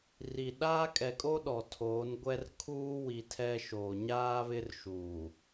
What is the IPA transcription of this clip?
r i˨ ɗ aː˦ kʼ ɛ˨ kʼ o˦ ɗ ɔ˨ tʰ oː˨˦ n ɡʷ ɛ˦ r kʰ uː˦ w i˨ tʰ ɛ˦ ʃ oː˨ ɲ aː˦ β ɪ˦ r ʃ uː˨

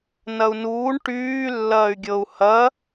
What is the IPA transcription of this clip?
n ɐ u̯ n uː ɳ ʈ yː lː ɐː y̯ ɡʲ ɤ u̯ h ɐ

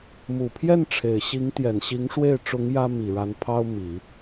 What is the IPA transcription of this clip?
m u˨˩ pʰ j ɛ˥˩ n ʈ͡ʂʰ e˨˩ ɪ̯ ɕ i˧˥ ŋ t̪ j ɛ˨˩ n ɕ i˧˥ ŋ ʂ w e˥˩ ɪ̯ ʈ͡ʂ ʊ˧˥ ŋ j ä˥ m i˨˩ ɻ a˧˥ n pʰ ɑ˥ ʊ̯ m i˨˩˦

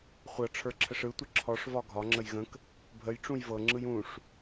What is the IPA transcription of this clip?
χʷ ɤ ʈ͡ʂʰ ə˞ ǁʰ ə ʂ ɯ tʷ ə ǁʰ ɔ ʂ v ɒ ɡʱ ɒ ŋ͡ǁ ə j ɣ ə̃ k | bʱ ə j ʈ͡ʂ ũ j v ɤ ŋ͡ǁ ɯ j ũ ʂ

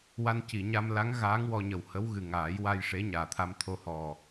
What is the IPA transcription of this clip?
w a˧ n c i˨˩˨ ɲ a˧ m l a˧˥ ŋ ɣ aː˧˥ ŋ w ɔ˧ ɲ ə˨˩ w h ə˧˥ w ɣ ɨ˨˩ ŋ aː˨˩˦ j w a˧ j ʂ e˧˥ ɲ aː˨˩ t̪ʰ a˧ m t̪ʰ o˧ h ɔ˨˩

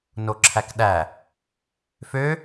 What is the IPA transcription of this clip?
n o ǁʰ æ k ɗ æ | f ø

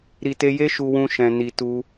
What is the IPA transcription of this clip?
ɾ i˨ t e˧ j e˦ ʃ u˧ w ũ˧ ʃ ɛ̃˧ n i˧ t u˦

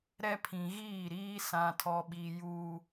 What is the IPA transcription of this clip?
ɾ ɛ˦ pʰ ĩ˨ ɣ iː˦˨ ɾ iː˦ s ã˨ tʰ ɔ˨ ɓ i˨ j uː˨

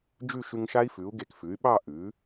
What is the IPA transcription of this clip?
d͡ʒ ʉ˥˨ ʃ ʉ˧ ŋ ʃ a˦˥ i̯ f ʉ˩˥ u̯ ɡ e˧˩ k f ʉ˩˥ y̯ ɓ ɑ˥˨ ʔ ʉ˩˥

